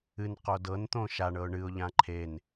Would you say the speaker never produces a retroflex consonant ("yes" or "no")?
no